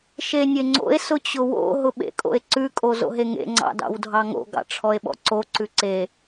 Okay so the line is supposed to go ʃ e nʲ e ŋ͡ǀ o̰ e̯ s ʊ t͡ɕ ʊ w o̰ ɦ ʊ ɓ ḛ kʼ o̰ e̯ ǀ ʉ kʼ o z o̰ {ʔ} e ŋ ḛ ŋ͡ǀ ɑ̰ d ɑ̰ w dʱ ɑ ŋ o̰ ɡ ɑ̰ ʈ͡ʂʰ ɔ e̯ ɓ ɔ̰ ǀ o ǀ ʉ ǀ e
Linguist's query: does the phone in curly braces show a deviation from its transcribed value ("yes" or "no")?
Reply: yes